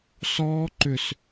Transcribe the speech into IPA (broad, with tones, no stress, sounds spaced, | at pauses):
s ɔː˦˥ ǃ ʏ˧˩ s